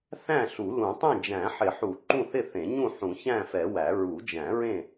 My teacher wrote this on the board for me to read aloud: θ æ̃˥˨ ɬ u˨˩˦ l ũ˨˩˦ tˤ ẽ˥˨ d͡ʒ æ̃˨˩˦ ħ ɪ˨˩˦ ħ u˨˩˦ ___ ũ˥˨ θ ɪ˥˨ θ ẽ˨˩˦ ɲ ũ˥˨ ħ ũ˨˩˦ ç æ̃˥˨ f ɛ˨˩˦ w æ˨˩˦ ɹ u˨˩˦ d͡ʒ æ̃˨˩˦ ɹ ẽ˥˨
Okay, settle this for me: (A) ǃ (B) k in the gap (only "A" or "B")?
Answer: A